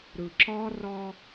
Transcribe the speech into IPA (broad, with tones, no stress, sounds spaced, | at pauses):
ɾ ɯ˨ ǁ ɒ˦ r ɒ˦